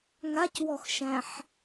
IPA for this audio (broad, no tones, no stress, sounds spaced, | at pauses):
ŋ a c w ɔ x ʃ æ̃ ħ